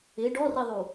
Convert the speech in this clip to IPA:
ɪ ɖɔriðˤu

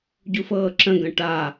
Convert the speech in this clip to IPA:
ɟufɤːǁə̃ ɡə̃ʈa

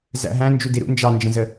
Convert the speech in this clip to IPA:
zæ̰ɦæ̃ nd͡ʒudiɾṵ nd͡ʒɑnd͡ʒə̃zə

